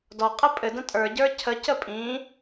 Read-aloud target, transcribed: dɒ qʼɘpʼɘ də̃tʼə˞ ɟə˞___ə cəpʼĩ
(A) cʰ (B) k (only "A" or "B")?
A